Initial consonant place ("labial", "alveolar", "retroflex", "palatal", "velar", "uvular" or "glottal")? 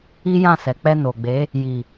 palatal